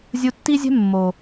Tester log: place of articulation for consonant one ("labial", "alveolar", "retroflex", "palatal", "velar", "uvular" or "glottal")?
alveolar